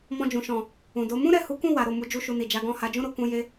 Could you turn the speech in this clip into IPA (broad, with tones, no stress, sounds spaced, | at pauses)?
m ɔ̃˧ d͡ʒ ũ˨ ʃ ɔ̃˨ | ũ˨ d o˨˦ m ũ˦ ɾ ɛ˦˨ h u˨˦ k ũ˦˨ w a˨˦ ɾ o˦˨ m u˨˦ d͡ʒ u˦ ʃ u˧ n i˨ d͡ʒ a˨˦ ɡ ɔ̃˦˨ h a˨˦ d͡ʒ ũ˦ ɾ o˧ k ũ˧ j e˧